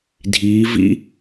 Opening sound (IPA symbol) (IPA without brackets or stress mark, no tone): dʱ